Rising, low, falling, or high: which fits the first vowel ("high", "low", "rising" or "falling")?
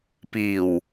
low